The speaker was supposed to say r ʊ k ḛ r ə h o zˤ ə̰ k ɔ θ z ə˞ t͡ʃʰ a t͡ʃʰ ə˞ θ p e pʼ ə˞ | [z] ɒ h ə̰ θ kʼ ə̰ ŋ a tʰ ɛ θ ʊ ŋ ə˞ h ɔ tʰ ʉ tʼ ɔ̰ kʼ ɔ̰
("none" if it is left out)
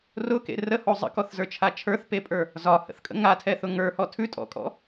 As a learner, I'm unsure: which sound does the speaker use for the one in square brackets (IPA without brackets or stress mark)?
z